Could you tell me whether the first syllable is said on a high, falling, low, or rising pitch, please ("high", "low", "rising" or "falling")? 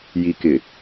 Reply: low